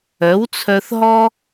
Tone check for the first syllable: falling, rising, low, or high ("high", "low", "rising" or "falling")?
rising